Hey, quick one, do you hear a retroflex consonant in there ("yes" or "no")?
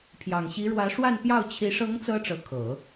yes